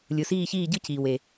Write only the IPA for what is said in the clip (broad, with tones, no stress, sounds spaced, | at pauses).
lʲ ɯ˩ s iː˦˨ ç iː˦˨ ɟ ɯ˦˨ c iː˩ w e˩